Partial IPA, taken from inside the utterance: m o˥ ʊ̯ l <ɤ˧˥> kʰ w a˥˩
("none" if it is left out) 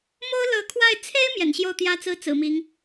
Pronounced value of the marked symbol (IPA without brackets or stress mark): ɤ˧˥